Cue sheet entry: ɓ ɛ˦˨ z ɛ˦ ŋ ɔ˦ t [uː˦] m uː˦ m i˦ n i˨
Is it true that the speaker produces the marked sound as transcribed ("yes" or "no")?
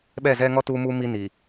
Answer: yes